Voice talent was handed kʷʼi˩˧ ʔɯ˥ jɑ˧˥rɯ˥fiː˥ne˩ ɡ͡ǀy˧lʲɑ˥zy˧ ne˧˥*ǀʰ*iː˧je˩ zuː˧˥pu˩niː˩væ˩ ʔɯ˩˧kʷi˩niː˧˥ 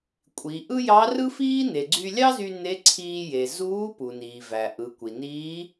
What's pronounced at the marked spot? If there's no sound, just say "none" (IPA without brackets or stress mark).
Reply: ǀʰ